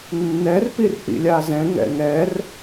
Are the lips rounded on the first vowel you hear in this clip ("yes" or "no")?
no